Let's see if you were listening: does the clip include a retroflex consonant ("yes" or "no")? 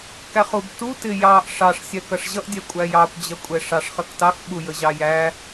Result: yes